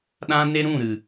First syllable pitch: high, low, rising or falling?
high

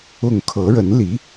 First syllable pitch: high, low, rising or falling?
falling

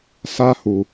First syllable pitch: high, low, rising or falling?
high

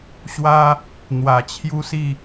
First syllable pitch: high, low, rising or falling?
high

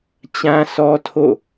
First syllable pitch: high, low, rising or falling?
high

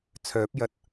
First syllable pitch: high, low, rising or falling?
rising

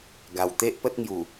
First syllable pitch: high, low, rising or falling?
low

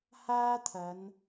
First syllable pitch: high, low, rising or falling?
high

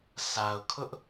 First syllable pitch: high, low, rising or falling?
low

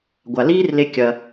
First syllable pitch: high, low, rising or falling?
low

